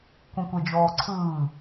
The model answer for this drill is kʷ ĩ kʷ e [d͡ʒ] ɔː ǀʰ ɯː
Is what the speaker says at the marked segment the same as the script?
yes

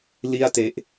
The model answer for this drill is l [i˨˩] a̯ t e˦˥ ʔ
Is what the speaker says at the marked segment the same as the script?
no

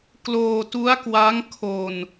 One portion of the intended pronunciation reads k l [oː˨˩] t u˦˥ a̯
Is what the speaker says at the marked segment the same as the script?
no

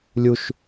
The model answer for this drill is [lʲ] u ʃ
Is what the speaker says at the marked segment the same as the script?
yes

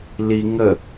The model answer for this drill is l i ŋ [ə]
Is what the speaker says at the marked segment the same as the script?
yes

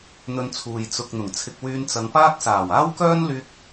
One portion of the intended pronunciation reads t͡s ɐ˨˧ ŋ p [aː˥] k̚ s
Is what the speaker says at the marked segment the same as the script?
yes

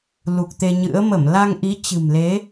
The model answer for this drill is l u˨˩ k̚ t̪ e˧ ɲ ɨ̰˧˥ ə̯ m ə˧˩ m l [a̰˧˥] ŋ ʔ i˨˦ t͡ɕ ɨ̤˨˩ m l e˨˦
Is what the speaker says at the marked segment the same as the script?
no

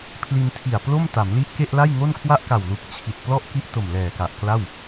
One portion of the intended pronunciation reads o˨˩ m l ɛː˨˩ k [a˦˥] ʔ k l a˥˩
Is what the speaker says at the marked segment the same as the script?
no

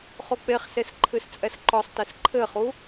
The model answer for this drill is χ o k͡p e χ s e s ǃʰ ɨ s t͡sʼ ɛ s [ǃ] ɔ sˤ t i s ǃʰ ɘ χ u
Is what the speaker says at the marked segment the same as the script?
yes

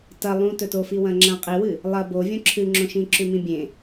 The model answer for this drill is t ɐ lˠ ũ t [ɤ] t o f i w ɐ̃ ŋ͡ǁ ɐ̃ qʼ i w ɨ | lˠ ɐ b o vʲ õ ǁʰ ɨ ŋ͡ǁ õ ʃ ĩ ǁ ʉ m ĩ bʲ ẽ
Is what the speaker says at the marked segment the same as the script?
no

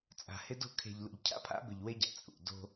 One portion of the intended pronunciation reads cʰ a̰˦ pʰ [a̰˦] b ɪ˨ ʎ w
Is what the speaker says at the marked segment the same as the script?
yes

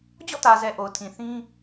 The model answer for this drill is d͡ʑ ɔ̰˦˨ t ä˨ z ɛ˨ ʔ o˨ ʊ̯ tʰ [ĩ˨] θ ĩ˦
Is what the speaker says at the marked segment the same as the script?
yes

